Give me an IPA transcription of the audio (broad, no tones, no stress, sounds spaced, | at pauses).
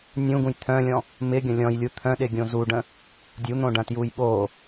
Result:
nʲ ũ ɡ ũ j t̪ʰ œ̃ lʲ ɔ̃ | m ɪ ɡʲ ɐ̃ lʲ ɔ̃ j lʲ u t̪ʰ œ̃ ɗ ɪ ɡʲ õ z u ɖ ə̃ | dʲ u n̪ õ ɖ ɐ̃ t j u j ɓ o